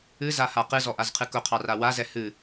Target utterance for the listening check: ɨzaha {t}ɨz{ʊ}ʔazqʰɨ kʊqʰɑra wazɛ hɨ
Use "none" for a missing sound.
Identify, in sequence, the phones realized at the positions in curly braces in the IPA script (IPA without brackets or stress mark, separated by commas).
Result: q, ɔ